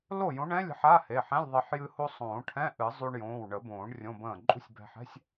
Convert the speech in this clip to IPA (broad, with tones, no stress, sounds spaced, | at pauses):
l o˥˩ j õ˨˥ ɳ ɛ̃˧˥˧ lʲ ə̤˧ ħ a˧˥˧ h e˩˧˩ ħ ɛ̃˧˥˧ lʲ ðˤ e˧ ħ j ɨ˧ h o˧ sˤ õː˨˩˦ ʈʰ ɛ̃˧˥˧ ʔ ɨ˨˩˦ zˤ y˧ ɳ j õː˩˧˩ w ɳ ə˨˩˦ b õː˨˩˦ ɳ rʲ õ˧˥˧ b ə̃ː˥˩ ǃʼ ṳ˥˩ sʲ b ɛ̤˧ ħ ɛ̤˧˥˧ sʲ